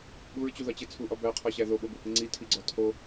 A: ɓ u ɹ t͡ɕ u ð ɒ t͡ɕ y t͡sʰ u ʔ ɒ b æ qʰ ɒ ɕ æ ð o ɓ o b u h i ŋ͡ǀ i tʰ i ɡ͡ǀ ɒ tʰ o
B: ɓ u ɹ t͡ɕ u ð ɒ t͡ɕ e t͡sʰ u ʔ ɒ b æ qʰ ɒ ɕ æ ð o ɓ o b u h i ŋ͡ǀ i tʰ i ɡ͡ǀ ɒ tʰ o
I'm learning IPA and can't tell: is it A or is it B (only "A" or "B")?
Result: B